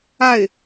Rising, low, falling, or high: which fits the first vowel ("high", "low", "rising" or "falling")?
falling